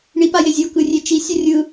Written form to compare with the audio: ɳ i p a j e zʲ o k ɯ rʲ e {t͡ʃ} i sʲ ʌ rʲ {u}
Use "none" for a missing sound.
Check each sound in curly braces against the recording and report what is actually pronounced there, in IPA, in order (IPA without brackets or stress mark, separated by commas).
t͡ʃ, ɯ